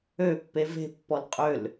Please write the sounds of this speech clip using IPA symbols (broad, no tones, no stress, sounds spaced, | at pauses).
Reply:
ø pː e v e̤ pː ɔ l qʼ ø l